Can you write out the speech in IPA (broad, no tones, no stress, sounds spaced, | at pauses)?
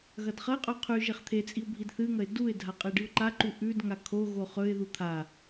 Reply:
ɣ ɐ d χ ɐ ɪ̯ qʼ ʉ qʰ ʉ ʒ e χ t̪ʰ e t͡sʼ i ʊ̯ bʱ i d θ ɨ ŋ ɐ ɪ̯ d u ɪ̯ dʱ a qʼ e ɖ ɨ ʊ̯ ǃ a ǃ u ʔ ʉ d ŋ a kʰ o ɣ o χ ɵ ɪ̯ ð u t̪ʰ a